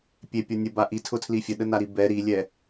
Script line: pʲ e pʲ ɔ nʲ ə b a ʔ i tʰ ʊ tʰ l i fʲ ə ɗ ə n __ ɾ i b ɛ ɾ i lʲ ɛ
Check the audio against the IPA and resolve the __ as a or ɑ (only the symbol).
a